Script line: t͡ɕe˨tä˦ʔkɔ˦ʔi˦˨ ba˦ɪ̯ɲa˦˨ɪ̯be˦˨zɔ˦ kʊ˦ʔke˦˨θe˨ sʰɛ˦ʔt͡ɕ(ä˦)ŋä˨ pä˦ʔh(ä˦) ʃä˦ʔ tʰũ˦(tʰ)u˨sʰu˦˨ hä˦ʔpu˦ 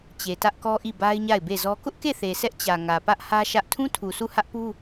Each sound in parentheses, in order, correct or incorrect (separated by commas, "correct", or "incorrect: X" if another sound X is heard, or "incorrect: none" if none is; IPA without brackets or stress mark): incorrect: ä˨, correct, correct